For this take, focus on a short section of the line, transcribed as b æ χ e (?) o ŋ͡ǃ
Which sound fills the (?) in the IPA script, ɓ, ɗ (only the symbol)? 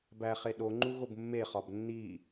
ɗ